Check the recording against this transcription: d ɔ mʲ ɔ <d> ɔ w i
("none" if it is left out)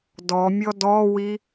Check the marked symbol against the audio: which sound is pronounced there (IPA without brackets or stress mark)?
d